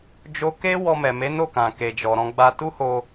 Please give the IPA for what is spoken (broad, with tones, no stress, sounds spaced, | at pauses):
d͡ʒ o˧ k e˦ w ɔ˧ m ɛ˨ m e˨˦ n o˦˨ k ã˨ k e˨ d͡ʒ ɔ˨ ɾ ɔ̃˧ ɡ͡b a˧ t u˦ h o˧